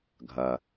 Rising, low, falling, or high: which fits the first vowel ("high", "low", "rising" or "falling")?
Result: low